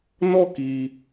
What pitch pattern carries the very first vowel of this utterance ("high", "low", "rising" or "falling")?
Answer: falling